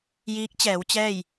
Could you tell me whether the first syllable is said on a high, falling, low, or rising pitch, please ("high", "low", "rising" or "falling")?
rising